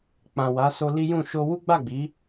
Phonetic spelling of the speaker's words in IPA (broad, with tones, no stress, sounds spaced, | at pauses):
k͡p ã˨ w a˨˦ s o˧ l i˦ j ũ˦˨ ʃ o˧ w u˦ ɡ͡b a˦˨ ɡ͡b i˨˦